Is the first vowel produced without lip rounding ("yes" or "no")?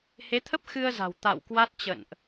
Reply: yes